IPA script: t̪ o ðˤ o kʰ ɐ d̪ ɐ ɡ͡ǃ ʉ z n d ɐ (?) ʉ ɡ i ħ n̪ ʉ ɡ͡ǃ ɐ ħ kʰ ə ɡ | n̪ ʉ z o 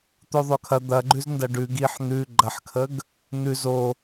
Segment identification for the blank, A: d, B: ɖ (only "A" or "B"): B